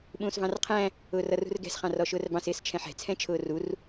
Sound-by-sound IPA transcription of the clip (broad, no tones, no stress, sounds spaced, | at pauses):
ɓ ũː s v ɑ̃ r qʰ æ̃ | ʊː r ʌ r ṳ r ɡ ɛ̤ s χ ɑ̃ r ɔ ʃ ʊː r b ɑ̃ s ɪː s t͡ʃʰ ɛ̃ ħ ɛ̤ t͡sʰ ɛ̃ t͡ʃʰ ʊː r u r